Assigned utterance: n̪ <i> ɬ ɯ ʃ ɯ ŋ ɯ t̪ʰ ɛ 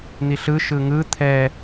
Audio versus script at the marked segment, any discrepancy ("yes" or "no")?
no